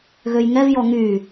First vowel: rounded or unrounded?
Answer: rounded